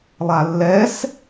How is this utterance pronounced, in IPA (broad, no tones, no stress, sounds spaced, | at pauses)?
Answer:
lˠ a lː ɛ s